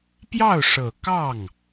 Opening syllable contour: falling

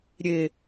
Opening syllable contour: low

